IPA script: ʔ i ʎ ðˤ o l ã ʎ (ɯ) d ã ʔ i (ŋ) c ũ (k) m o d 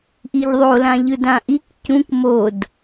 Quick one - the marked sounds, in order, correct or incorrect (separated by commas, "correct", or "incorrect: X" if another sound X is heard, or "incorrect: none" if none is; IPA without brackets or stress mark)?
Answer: correct, incorrect: k, correct